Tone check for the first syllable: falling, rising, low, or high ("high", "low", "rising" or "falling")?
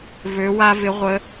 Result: rising